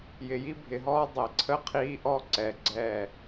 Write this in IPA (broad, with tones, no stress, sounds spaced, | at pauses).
j ɪ˨ j i˦ bʱ ɪ˨ ɦ ɔː˦ dˤ ɛ˨ ǀʰ ə˦ qʰ iː˦ ʔ ɔ˦ ǀ ɛ˨ ɡ͡ǀ ɛ˦˨